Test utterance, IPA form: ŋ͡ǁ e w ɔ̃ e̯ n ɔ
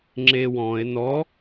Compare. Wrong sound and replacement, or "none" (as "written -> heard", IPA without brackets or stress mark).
none